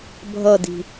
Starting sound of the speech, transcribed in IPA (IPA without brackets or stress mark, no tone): bʱ